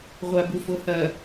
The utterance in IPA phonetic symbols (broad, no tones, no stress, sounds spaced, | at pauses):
ʁʷ a b u f o h ɐ